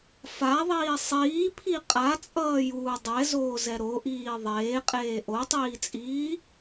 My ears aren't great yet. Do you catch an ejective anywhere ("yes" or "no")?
yes